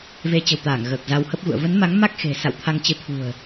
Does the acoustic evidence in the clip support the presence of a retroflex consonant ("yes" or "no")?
no